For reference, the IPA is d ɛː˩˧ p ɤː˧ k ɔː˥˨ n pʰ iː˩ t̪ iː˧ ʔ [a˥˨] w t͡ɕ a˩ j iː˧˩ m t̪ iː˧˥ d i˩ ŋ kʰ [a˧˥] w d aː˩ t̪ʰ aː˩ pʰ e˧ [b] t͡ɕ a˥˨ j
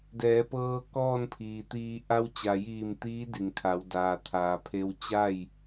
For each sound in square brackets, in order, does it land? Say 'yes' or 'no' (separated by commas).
no, no, no